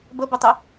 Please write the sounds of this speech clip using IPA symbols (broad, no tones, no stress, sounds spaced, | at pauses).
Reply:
b ə b ʊ tˤ ɨ